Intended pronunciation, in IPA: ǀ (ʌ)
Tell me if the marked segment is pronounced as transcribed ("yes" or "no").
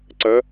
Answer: yes